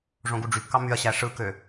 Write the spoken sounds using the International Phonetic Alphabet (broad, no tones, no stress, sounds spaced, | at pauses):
ʐ õ ɡ u ɖ͡ʐ y p k ɑ m y ɐ̯ ɕ æ ʂ ɯ k ø